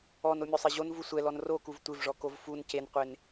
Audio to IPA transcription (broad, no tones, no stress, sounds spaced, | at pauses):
ɔ n o mʲ o sˤ e ʑ o n v u sʷ ɛ l ɔ n r o k u v tʷ ɪ v ʐ ɔ k o v f u n c e n qʷ e n